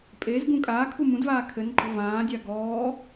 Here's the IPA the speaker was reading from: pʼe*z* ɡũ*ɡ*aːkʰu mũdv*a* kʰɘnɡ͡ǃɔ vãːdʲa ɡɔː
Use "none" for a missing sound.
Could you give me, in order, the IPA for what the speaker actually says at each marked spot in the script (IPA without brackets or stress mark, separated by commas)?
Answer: z, kʼ, aː